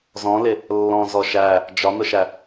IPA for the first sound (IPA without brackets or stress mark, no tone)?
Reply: z